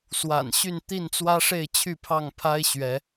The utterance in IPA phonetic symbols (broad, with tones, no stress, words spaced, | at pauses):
swa̰˨˩nɕy˥˨n t̪i˥˨nt͡swä˦ʂe˥˨ɪ̯ t͡ɕʰy˥˨pʰɑ˥˨ŋpʰa˦ɪ̯ ɕɥɛ˨˦